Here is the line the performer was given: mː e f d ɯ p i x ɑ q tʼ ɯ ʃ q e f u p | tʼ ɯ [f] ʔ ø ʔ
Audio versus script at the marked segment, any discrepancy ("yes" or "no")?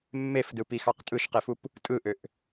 yes